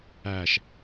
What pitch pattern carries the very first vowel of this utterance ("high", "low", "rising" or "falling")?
low